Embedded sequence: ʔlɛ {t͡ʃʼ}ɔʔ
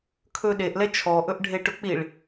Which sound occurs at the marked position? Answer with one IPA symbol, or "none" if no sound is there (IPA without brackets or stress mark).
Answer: t͡ʃʰ